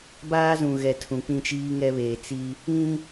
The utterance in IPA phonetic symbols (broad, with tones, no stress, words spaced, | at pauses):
baː˦zũ˨ɣɛ˨ tʰũ˨ k͡pĩ˦t͡ʃiː˦ŋɛ˦βeː˨ t͡si˦ | ĩ˦